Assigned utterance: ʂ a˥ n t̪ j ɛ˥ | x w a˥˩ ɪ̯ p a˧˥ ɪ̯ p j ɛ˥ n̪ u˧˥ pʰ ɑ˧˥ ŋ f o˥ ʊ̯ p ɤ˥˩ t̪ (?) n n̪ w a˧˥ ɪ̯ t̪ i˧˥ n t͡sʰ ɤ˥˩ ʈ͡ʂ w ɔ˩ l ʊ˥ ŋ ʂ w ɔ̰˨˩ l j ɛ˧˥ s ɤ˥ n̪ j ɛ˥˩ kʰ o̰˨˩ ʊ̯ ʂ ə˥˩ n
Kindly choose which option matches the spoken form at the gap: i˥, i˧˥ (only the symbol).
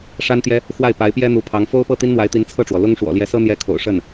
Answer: i˥